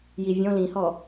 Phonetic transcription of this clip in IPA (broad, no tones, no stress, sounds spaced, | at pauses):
j i vʲ ɔ̃ l ĩ h ɔ